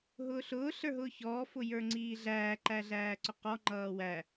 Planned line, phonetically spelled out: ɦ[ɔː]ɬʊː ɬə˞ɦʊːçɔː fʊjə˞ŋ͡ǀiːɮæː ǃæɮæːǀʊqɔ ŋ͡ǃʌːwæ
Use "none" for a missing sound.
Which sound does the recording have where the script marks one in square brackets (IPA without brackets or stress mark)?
ʊː